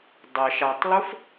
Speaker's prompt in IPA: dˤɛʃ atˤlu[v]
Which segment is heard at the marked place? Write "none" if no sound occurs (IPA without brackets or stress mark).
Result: f